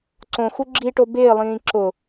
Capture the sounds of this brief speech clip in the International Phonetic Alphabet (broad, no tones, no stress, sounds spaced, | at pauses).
ǀ õ x u ɡ͡ǁ i ʈ o b ɪː lˠ ĩː ǁ ʊ